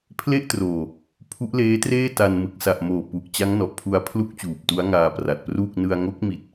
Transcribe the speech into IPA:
pʰ l e˥˩ ʔ t r oː˨˩ | pʰ u˦˥ ʔ l eː˦˥ t r eː˥˩ t a˧ n m ɯ˨˩ k̚ s a˨˩ ʔ m oː˨˩ p u˨˩ ʔ t͡ɕ a˦˥ ŋ n ɔ˨˩ ʔ pʰ u˧ a̯ pʰ l u˥˩ k̚ t͡ɕ uː˨˩ p̚ t u˦˥ a̯ ŋ aː˧ p r a˨˩ t̚ p r uː˥˩ k̚ n ɯ˧ a̯ ŋ o˦˥ k̚ m i˨˩ t̚

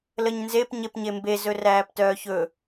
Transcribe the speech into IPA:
l ə ɲ n z e p ɲ e p ɲ e m b e z ɵ r æː p t œː ç ɵ

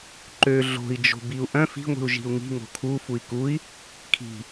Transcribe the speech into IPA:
ǃ ø ɮ o̤ i̯ d͡ʒ o̤ b i u̯ ʔ œ̃ f i̤ ŋʷ i̤ u̯ ʒ i̤ u̯ ŋ i̤ ŋ o̤ kʰ u f u i̯ k u i̯ | kʰ i̤

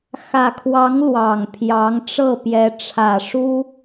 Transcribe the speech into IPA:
x ä˨˩ kʰ w ɑ˧˥ ŋ l w ɑ˨˩ ŋ pʰ j ɑ˧˥ ŋ ʈ͡ʂ ɤ˥˩ p j ɛ˧˥ ʈ͡ʂʰ ä˨˩ ʂ u˥

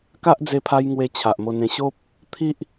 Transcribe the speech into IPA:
k a˦ ʔ d͡z e˧ pʰ a˧ j ŋ w e˧ t͡ɕʰ a˨ ʔ m o˧ n ẽ˧ ɕ o˦ p̚ | t̪ʰ i˦ ʔ

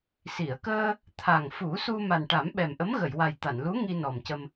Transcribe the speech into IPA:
s i˨˩˨ ə̯ k əː˧ | t̪ʰ a˨˩ ŋ f u˨˩˦ s u˧ m a˨˩ n ʈ a˨˩˦ m ɓ ɛ˨˩ m ʔ ə˧˥ m ɣ ə˨˩˨ j w a˨˩ j t̪ a˨˩˨ n l u˧˥ ŋ i˧ n ɔ˨˩ m c ə˧ m

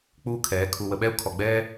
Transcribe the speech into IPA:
k͡p uː˦ kʰ ɛː˨˦ kʰ u˨ w ə˨ ɓ ɛ˦ u̯ kʰ ɔ˨ ɡ͡b ɛː˦

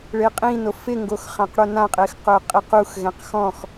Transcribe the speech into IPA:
ɭ e qʼ ĩ n o f ɪ ŋ ɡ o x χ ã q ɽ o n ã qʼ ɪː x q ʊː qʼ ɪ q u x ɣ ɛ̃ q x ɔ̃ x

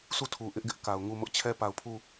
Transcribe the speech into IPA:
sʰ u˦˨ tʰ u˨ ʔ ɪ˦ ʔ ɡ ɪ˦ ʔ k a˨ ʊ̯ ŋ u˦˨ m ʊ˦ ʔ t͡ɕʰ ɛ˦ p a˨ ʊ̯ pʰ u˦˨

